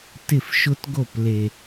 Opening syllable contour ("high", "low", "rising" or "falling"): falling